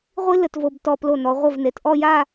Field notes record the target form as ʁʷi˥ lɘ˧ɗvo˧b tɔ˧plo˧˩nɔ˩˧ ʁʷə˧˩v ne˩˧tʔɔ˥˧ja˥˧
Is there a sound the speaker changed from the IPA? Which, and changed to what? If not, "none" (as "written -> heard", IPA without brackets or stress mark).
ɗ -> t